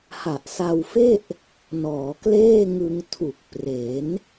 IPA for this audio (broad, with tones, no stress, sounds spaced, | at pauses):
h a˨˩ ʔ s a˧ w f e˥˩ ʔ | n ɔː˩˦ k l eː˥˩ ŋ ɯ˧ ŋ tʰ u˨˩ k̚ p r e˩˦ n